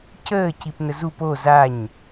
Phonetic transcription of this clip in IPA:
c əː c i p n ə z u p o z a ɲ

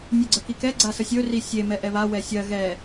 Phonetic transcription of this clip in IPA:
nʲ ɵ ɡ͡ǀ ə k i k ɛ ɡ͡ǀ a s ə sʲ ɵ r i sʲ e m ɛ ʔ ɛ β a w ɛ sʲ ɜ ɣ ɛ

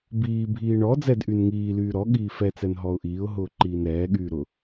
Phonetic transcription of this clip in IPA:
b iː bʱ iː ɳ ɔ d͡z ɛ d ʔ y n ŋ iː l yː ɾ ɔ ɠ iː f ɛ t͡s ɛ n ɦ ɔ ʊ̯ ʔ iː ʊ̯ ɦ ʊː ǃ iː n ɾ ɛː ɠ yː ɾ ʊ

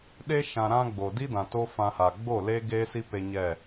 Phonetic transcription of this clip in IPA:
ɗ e˦ ʃ ã˧ ɾ ã˧ ɡ͡b o˨ d i˦ d ã˨ t o˦ f ã˧ h a˨ ɡ͡b o˦˨ l e˦ ɡ e˦ s i˦ p e˧ ɲ ɛ˦˨

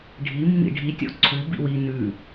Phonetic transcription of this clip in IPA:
ɖʱ i mː ḭ ɖʱ i tʲ ɔ̰ ǀʰ u b ḭ w i n ʉ

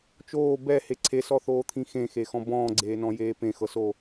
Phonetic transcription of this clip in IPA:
t͡ʃ oː b ɛ h e ǀʰ e s ɔ θ oː t̪ʰ ĩ x ẽ x e x ɔ̃ b ɔ̃ː ɡ͡ǀ eː n ɔ̃ j eː p ẽ x ɤ s o

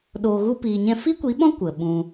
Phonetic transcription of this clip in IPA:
ɗ oː˨ ɣ u˧ p iː˨ ɲ ɛ̃˧ f i˦ kʷ i˨˦ ɓ ɔ̃˦ kʷ ə˨ ɓ ũ˧

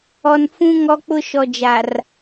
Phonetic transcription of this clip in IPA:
ɔ˨ n f ũ˦ ŋ ɔ˦ k͡p ʊ˦ ʃ ɔ˨ d͡ʒ a˨ r

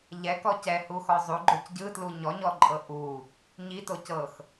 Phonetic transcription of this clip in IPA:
ʎ ɛ k ɔ c ɛ h u x ɔ zˤ u ɡ͡ǃ o c ɟ ɯ t l u ɲ ɔ ɲ ɔ ǃʼ ɤ ʔ u | ɲ i t o c ɤ x

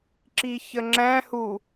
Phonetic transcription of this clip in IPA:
ǁ i ç ə ŋ͡ǁ æ̃ h u

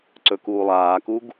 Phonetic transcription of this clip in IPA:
ǀ ɵ k uː lˠ aː k u ɡ

